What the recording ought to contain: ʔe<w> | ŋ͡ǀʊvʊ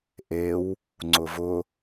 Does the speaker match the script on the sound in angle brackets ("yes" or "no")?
yes